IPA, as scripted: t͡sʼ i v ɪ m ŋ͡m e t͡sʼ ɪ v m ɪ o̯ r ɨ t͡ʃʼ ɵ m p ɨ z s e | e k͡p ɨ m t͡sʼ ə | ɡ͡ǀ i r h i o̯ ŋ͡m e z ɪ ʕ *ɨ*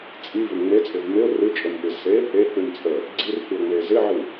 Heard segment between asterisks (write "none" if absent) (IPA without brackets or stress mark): ɨ